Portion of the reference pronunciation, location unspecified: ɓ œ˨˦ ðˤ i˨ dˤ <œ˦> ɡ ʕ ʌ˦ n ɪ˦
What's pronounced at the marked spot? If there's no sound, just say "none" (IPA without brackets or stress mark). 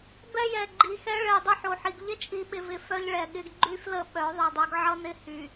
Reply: œ˦